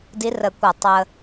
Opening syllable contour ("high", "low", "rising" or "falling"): rising